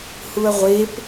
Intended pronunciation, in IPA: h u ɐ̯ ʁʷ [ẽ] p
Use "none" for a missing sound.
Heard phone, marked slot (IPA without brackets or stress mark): e